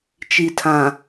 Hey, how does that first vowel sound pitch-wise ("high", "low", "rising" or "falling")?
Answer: low